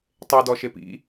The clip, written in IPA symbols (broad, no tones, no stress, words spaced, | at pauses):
tˤedɔʃep ḭ